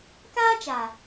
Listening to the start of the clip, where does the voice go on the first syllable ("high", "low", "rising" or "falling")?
high